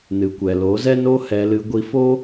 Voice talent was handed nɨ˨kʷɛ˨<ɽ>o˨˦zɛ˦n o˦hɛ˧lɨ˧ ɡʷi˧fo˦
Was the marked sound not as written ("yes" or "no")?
yes